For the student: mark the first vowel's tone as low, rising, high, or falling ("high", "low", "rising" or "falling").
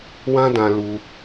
high